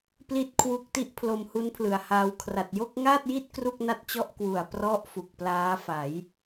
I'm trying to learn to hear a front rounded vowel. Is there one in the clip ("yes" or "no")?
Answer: no